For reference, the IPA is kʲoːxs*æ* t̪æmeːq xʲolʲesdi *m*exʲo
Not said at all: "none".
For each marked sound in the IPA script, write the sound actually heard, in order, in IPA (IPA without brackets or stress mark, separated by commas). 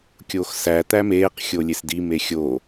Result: æ, m